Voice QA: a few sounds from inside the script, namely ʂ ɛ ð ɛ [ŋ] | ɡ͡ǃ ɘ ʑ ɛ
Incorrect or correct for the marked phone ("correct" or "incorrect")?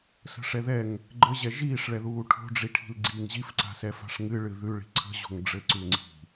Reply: correct